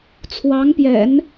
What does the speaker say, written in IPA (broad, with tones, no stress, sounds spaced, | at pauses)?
t͡sʰ w ɑ˧˥ ŋ p j ɛ̰˨˩˦ n